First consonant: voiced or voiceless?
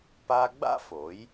voiceless